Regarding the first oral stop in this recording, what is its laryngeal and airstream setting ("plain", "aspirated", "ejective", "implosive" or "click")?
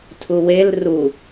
aspirated